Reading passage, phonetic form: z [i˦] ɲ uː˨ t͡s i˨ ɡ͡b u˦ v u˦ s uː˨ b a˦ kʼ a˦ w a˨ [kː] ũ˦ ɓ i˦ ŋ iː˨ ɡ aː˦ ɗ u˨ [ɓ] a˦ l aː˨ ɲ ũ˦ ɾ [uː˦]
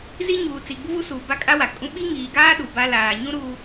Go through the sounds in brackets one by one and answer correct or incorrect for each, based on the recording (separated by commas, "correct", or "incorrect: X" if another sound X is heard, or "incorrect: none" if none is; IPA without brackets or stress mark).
correct, incorrect: kʼ, incorrect: b, correct